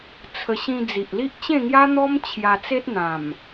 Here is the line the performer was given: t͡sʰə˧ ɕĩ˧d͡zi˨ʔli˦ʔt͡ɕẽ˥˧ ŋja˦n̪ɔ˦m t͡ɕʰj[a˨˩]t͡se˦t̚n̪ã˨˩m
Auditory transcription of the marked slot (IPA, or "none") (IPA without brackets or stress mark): a˧